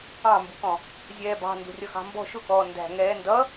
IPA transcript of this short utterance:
ɑ̃mbukɔ̃ | zʲɛːbɑ̤ ndṳrʲʌxɑ̤mbɔ̤ ʃʊkɔː ndæ̤ ŋɛːndʌ

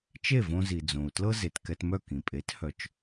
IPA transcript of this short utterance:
t͡ʃe˥˩võ˧zi˩ d͡zõ˩u̯tlɤ˥ ze˩tkɛ˧tmœ˥˩ kĩ˩pʼe˩˥t hœ˩˥t͡ʃ

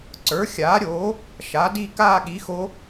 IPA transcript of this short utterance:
ǀə˞˩˥xʲaː˩˥ɾʲoː˩˥ | ʃa˩˥di˥˧ kaː˥˧ɠi˩˥xo˧˥

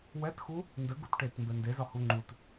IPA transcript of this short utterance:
wɛtxu | ndə ɡutʈet mbɛndezɒ huŋ͡ǃut

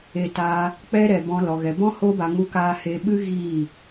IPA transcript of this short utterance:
e˧taː˧ | k͡pɛ˦ ɾɛ˧ bɔ̃˧ lɔ˧ɣɛ˧ bɔ̃˦ ho˦ba˧ ŋu˧kaː˧ he˧ɓɨ˦ ɣiː˦˨

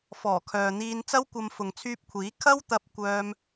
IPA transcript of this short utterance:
fɔː˨˩kʰœː˨n̪iː˧n t͡sɐ˥wkʷɐ˧m fʊ˨ŋt͡sʰyː˧p̚kʷʰiː˨˥ kʰɐ˥wt̪ɐ˧p̚ kʷœː˥m

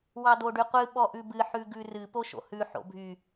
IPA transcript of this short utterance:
wɑd̪oɖyqʷɨ ɓɔʔʉbɨ ħʉɡʉrɨ poʃo̰hʉ ħo̰bʱy

